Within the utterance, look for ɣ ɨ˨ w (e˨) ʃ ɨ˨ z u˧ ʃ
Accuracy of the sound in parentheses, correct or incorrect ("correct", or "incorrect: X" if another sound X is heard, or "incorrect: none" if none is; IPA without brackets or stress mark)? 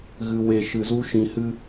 correct